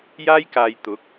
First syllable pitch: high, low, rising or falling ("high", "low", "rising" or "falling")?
high